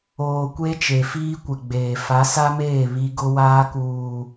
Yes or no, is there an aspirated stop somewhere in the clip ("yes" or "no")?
no